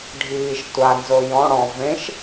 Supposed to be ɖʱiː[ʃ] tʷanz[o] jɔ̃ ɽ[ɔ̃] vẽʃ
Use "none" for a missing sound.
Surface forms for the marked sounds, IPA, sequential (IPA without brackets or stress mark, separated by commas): ʃ, o, ɔ̃